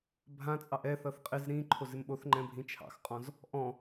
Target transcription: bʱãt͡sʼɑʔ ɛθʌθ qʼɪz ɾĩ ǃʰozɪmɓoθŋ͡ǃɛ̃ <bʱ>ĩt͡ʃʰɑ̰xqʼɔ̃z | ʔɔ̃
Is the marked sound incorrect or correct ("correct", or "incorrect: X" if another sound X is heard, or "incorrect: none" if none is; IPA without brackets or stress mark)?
correct